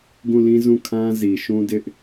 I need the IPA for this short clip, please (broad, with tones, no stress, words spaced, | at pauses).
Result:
ɡũ˦˨lĩ˦ zũ˦˨kʰã˦ zi˨ ʃũ˦dɪ˦ʔ